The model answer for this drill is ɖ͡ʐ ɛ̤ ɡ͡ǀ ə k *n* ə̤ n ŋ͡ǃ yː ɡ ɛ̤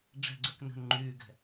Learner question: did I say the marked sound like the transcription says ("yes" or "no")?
yes